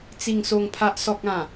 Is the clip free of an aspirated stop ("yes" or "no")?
no